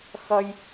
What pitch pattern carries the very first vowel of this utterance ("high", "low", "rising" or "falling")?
high